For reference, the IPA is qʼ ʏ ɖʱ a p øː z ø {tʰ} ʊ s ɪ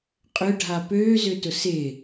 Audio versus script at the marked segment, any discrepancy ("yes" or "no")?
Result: yes